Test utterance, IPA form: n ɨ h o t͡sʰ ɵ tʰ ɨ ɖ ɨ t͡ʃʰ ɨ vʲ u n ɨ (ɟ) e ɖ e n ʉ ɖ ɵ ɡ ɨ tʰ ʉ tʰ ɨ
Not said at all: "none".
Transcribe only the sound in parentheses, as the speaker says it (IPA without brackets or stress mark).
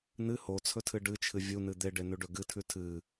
d̪